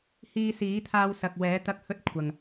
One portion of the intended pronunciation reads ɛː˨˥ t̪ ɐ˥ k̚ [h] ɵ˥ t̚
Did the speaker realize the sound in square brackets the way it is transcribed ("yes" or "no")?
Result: yes